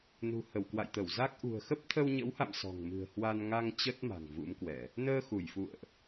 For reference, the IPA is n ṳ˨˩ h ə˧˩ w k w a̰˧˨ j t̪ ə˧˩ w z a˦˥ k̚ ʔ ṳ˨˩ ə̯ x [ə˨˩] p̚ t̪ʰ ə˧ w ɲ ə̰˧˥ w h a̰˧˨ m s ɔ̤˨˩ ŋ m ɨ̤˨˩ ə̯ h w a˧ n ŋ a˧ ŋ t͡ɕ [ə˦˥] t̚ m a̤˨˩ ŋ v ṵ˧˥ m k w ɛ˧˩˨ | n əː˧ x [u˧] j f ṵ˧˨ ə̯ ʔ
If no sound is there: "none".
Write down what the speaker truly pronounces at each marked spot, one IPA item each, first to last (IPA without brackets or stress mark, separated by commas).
ə˦˥, ə˦˥, u˧˩